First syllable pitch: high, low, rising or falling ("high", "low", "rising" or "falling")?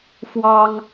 high